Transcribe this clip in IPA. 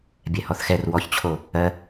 bʲ ɛ h ɔ θ x ɛ r w ɔ ç t͡ɕʰ o | ɜ

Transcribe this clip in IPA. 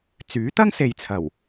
t͡s yː˨˥ t̪ ɐ˥ ŋ s e˨ j t͡sʰ ɐ˨˩ w

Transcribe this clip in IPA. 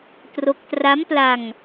t r o˦˥ k̚ t r a˦˥ m p l a˧ ŋ

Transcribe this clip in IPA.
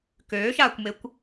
k øː ʃ aː kʷ m e kʷ

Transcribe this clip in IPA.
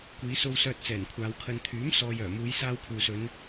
kʷ iː˨˧ s o˧ w s œː˧ t̚ t͡s ɛː˨˩ n kʷʰ aː˨˧ w kʰ ɐ˧ n t̪ʰ yː˨˥ m s ɔː˨ j œː˨˩ m uː˨˧ j s aː˧ w kʰ uː˨ s ɵ˨˧ n

